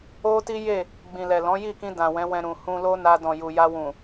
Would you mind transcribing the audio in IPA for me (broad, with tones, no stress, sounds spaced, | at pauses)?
o˦ t i˦ j e˦˨ | ɡ͡b ĩ˨ l ɛ˨ l ɔ̃˨˦ j i˦˨ k ĩ˧ d ã˨ w ɛ̃˨˦ w ɛ̃˧ ɾ ũ˨ h ũ˧ l o˦ n a˧ d ɔ̃˨ j u˨ j a˧ w ũ˨